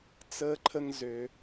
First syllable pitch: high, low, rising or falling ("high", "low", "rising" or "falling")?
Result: high